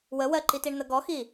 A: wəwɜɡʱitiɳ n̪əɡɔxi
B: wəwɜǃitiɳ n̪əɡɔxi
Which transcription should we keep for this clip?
B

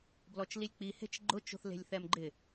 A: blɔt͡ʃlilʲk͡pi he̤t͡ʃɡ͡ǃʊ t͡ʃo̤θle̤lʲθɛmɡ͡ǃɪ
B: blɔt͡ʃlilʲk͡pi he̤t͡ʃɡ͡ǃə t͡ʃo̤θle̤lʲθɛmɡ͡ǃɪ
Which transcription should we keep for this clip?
A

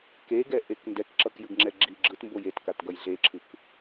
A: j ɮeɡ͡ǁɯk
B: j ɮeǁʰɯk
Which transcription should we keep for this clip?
B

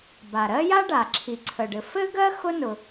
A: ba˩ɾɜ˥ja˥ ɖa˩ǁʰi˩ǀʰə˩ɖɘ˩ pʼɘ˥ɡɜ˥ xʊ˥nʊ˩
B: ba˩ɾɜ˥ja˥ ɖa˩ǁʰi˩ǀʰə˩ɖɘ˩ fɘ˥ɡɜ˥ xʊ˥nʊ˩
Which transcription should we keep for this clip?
B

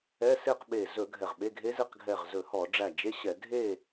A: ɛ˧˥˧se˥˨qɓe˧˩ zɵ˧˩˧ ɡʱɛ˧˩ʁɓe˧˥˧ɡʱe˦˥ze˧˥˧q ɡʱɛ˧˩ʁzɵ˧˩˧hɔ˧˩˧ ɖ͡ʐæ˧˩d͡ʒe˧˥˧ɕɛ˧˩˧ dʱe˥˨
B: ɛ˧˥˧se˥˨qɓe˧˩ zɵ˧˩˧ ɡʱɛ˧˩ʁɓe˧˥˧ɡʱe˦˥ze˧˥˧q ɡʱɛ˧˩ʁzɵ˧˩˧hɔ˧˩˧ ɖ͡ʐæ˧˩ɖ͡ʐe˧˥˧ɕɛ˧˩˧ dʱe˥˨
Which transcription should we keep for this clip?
A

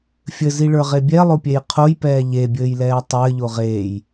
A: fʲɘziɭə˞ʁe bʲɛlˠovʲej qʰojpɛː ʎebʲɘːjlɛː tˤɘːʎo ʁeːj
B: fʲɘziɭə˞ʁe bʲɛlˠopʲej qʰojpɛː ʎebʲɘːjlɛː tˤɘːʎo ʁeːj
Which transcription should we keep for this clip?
B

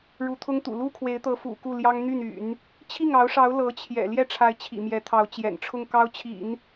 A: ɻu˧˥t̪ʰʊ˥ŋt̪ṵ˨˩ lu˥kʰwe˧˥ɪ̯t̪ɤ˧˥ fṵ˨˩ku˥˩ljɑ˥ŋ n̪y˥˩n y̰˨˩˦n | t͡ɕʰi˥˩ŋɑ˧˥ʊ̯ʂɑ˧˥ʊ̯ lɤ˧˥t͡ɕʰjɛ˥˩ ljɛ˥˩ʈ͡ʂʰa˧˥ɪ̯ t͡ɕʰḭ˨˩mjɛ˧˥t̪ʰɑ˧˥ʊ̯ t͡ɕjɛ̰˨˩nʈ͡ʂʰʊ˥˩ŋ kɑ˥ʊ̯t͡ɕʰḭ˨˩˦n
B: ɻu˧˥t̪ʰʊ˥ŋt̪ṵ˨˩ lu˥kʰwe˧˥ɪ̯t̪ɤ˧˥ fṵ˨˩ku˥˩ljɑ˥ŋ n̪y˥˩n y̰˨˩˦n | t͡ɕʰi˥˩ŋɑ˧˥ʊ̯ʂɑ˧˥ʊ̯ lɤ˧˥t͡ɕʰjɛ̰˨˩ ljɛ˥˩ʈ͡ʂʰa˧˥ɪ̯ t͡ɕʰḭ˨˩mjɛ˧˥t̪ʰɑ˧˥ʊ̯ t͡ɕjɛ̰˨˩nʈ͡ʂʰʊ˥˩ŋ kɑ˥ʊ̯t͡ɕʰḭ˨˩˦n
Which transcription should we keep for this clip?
B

